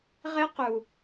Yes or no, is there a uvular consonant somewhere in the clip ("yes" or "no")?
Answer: yes